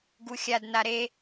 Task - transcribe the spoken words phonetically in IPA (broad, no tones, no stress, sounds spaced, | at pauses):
ɡ u xʲ a d n a ɾ e